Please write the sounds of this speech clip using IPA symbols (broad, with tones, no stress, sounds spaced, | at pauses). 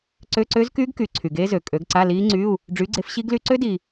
ǀ ø˧˥˧ ǀ ø˦˥ z k yː˦˥ ɡ k yː˨ ǀʰ y˨ ɡ eː˦˥ z ø˨ kʼ ø˨˥ ɡ ǀ a˧˥˧ l iː˦˥ ŋ͡ǀ yː˧˥˧ u̯ | ɖ͡ʐ yː˨˥ ɡ͡ǀ e˨˥ f ɕ i˦˥ ɡ l y˦˥ ǀ ø˦˥ d iː˨